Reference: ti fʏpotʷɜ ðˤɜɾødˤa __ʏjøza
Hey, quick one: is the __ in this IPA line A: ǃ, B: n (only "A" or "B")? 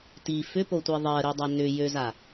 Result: B